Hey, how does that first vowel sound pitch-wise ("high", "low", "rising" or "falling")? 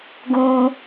high